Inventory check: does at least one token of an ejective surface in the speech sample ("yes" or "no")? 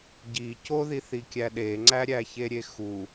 no